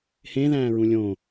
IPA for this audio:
h ẽ ð æ̃ː ɹ ũ lʲ õ

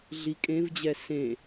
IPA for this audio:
ɮ i kʼ ẽ v d͡ʑ ɛ s ẽ

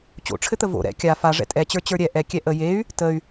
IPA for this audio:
t͡ɕ o̰ ʈ͡ʂʰ ɘ t̪ ə v o̰ ɾ ɛ̰ kʲ a f a ʐ ɛ̰ tʼ ɛ t͡ɕ ə˞ t͡ɕ ə˞ ɾʲ ɛ ʔ ɛ kʲ ɛ ʔ ə j e y̯ | t ə y̯

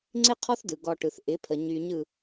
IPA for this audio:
ŋ͡ǀ ɪ˥ qʰ ɔ˥ θ d ɯ˩ ɡ ɔ˧ ʈ ɯ˩ θ ʔ ɪ˩˥ pʰ ə˩ ɲ y˧ ɲ ɯ˥˩

